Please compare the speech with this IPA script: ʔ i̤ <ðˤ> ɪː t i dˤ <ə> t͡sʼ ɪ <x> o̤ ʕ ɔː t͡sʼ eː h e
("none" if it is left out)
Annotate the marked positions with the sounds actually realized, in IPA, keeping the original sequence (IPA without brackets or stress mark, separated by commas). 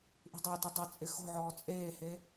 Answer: dˤ, ɪ, x